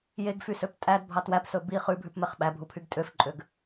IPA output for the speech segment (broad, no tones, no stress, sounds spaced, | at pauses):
j e ɡ f y s ø p tʼ æ d bʱ ɑ t w æ p s ɵ b i χ ʉ bʱ ʉ p m ɛ χ ɓ æ bʱ u pʰ y ɡ tʼ ø f ǃʼ ø ɡ